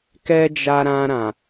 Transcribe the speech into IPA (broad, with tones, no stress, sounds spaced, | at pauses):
k ɛ˦ d͡ʒ a˧ ɾ ã˧ ɾ ã˨